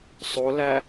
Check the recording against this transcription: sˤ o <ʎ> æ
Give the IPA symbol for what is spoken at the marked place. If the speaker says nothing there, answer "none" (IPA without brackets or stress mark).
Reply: l